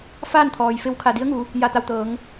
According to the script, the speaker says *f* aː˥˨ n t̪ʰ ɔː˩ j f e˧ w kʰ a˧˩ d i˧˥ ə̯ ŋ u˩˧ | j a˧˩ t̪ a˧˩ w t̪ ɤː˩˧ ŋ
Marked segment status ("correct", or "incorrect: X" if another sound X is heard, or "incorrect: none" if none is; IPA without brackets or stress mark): correct